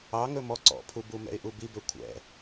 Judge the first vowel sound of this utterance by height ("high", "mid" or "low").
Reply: low